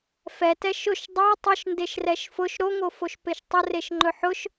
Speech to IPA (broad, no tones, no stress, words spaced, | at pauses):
fɛtɛ ʃʊʃ dˤo tˤʊʃ ndeʃrɛʃfʊʃ ɾoŋofoʃ peʃtˤʊreʃ ŋ͡ǃɵħʊʃ